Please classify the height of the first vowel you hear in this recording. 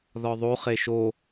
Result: low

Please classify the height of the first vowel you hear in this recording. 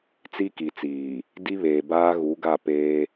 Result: high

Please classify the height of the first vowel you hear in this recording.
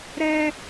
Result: mid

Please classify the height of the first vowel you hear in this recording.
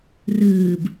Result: high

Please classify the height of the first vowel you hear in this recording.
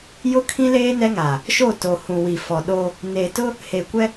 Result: high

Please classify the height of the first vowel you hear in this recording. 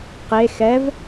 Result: mid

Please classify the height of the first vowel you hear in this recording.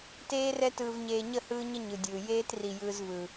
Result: mid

